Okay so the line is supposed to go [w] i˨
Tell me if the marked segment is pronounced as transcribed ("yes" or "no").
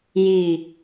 no